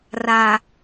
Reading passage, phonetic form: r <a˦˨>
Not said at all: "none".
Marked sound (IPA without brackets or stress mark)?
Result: a˨